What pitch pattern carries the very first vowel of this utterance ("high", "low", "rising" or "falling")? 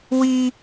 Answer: high